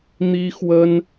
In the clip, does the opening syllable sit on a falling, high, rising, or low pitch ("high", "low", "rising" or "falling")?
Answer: high